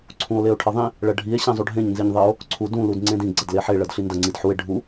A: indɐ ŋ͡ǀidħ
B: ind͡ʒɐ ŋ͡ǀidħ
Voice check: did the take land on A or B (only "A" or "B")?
A